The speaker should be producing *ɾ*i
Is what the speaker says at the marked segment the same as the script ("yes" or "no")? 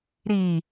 yes